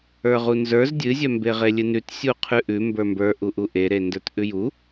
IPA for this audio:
ə˞ ʁ u n z ə˞ z dʲ ɨ zʲ œ m b e ʁ e lʲ ɨ n ʉ t sʲ u qʰ ʉ ʔ ʉ m b ə˞ m b ə˞ ʔ u ʔ u ʔ e ɾ e n d ə˞ t ʔ ʉ j u

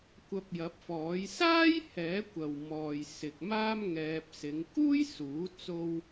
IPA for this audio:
kʷ ɐ˧ p̚ j ɐ˨˥ p̚ f ɔː˨˥ j s aː˥ j h ɛː˨˥ kʷ ɐ˨ w m ɔː˨ j s ɪ˨ k̚ m aː˥ m ŋ ɛː˧ p̚ s ɪ˨˧ ŋ k uː˥ j s uː˨˥ t͡s o˥ w

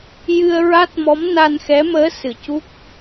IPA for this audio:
j ɨ˧ ə̯ ɹ a˦˥ t̚ m ɔ˧˥ m n a˧ n x ɛ˧˥ m əː˧˥ s ɨ˨˩ c u˦˥ k̚

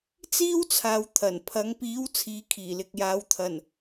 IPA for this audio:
t͡s iː˥ w t͡sʰ aː˨ w t̪ʰ ɐ˨˩ n pʰ ɐ˨˧ ŋ p iː˨˥ w t͡sʰ iː˨˧ kʰ iː˨˩ l ɪ˨ k̚ j aː˨˧ w t̪ʰ ɐ˨˩ n

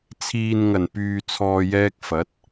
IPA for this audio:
t͡sʰ iː˨ n ŋ ɐ˨˩ n p yː˨ t͡sʰ ɔː˨ j ɛː˧ k̚ f ɐ˨˥ t̚

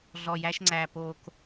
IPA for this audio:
ɮ ɔ˨ j æ˦ ʃ ŋ͡ǀ æ˨ p o˨ k

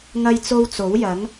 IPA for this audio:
ŋ ɐ˥ j t͡s o˥ w t͡s o˨˥ w j ɐ˨˥ ŋ

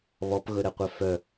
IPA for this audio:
β ɔ p ɣ ɵ ɾ ɛ qʷ œ f œ

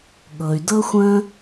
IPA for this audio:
ɠ ɤ˩ y̯ d ɤ˥ xʷ ə̃˥

